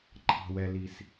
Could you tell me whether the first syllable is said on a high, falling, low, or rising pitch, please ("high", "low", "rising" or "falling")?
low